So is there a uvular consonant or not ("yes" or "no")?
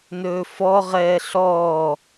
yes